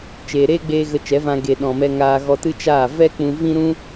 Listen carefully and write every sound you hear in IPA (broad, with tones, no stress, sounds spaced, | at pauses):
t͡ʃ eː˨ ɾ eː˦ ɡ͡b eː˧ ɣ ə˧ t͡ʃ ɛ˨˦ v ã˧ ɡ e˨ ɗ ɔ̃˨ m ɛ˧ ŋ aː˧ ɣ ɔ˧ t ɨ˦ t͡ʃ aː˦˨ v ɛ˦ k͡p ũ˧ v ĩ˦ ɾ ũ˦